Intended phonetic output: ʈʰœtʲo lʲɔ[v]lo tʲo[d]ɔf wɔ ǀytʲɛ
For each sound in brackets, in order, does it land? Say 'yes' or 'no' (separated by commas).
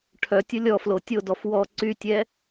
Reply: no, yes